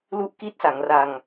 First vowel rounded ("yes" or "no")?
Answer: yes